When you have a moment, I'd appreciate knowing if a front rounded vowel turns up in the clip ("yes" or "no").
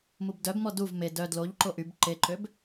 yes